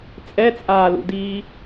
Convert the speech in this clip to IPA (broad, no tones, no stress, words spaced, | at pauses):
t͡sʼɛt͡sʼaːlṵdiː